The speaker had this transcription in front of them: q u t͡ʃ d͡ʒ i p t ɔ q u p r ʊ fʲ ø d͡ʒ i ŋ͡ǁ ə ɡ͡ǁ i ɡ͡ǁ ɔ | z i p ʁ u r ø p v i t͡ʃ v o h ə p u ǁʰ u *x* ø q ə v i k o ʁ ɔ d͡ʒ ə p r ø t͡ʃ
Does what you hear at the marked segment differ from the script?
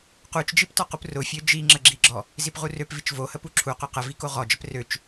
yes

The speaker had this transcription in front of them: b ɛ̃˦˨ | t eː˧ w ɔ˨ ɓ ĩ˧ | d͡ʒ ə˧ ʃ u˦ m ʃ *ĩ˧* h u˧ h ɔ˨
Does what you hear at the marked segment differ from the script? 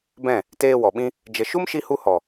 yes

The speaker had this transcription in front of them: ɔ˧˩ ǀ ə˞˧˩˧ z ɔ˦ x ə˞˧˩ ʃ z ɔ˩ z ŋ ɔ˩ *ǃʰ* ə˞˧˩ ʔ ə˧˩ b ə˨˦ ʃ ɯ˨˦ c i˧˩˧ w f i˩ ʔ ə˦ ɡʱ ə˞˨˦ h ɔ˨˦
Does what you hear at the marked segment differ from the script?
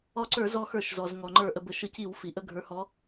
yes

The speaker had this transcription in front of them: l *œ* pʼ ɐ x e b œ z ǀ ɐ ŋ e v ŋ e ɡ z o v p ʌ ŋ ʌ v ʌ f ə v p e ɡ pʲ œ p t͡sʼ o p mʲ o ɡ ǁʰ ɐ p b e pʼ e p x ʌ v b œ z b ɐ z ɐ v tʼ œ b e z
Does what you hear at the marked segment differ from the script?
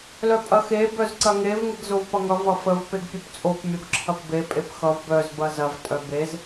no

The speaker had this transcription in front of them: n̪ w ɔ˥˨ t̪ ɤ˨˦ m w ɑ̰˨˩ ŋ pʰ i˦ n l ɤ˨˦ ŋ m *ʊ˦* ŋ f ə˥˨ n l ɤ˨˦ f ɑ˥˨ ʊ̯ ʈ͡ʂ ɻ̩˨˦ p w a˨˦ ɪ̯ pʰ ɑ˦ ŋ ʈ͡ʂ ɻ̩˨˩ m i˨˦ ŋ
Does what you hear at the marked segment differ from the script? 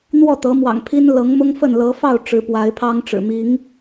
no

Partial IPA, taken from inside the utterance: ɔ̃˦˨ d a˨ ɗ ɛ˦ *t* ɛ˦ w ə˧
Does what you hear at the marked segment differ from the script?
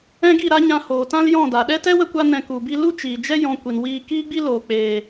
no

